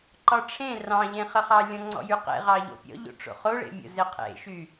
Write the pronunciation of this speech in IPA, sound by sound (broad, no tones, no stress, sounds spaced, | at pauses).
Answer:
ǃ ɒ ʈ͡ʂʰ ẽ r ɑ̃ ʎ ẽ χ ə χ ɑ lʲ ɔ̃ ŋ͡ǀ ɔ̰ j y q ḛ ʁ ɑ ʎ o̰ pʲ ɔ̰ ʎ o̰ ʈ͡ʂ o̰ χ o ɭ ḛ mʲ o̰ z ɪ qʰ ḛ ʃ y